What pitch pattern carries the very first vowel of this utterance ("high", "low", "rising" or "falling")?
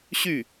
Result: falling